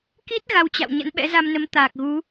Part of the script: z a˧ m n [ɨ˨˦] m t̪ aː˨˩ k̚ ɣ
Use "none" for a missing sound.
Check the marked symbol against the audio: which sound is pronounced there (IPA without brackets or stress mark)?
ə˨˦